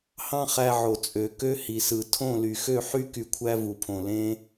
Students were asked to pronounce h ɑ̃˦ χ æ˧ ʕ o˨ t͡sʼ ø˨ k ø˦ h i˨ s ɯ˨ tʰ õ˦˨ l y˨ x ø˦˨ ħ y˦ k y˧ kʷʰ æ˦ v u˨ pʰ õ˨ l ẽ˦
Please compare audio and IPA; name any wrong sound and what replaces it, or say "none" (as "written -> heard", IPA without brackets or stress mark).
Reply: none